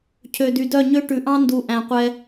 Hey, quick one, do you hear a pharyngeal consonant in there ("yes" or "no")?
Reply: no